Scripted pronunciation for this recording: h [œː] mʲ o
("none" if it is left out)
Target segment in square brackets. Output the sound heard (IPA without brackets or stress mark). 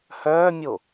œː